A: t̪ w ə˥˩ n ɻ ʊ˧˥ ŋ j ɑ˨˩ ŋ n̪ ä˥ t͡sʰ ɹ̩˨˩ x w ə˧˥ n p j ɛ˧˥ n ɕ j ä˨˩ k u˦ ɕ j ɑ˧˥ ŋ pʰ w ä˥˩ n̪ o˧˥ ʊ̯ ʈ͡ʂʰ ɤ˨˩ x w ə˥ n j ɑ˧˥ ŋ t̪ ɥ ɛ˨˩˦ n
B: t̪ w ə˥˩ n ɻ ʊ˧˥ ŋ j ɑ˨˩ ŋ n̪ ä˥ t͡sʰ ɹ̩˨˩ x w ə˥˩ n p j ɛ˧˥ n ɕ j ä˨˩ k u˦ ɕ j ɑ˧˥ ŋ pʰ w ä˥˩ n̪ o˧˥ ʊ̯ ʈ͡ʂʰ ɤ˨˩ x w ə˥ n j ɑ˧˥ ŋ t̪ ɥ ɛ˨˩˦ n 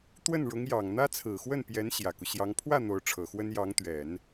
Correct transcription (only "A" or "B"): B